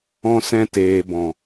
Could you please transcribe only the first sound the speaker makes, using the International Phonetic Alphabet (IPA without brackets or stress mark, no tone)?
ɔ̃